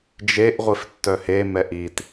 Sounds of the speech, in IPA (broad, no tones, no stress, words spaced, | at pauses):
d͡ʒeʔ ʁʷiftːœhe mɛʔit